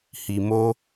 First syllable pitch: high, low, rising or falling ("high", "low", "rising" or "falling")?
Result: low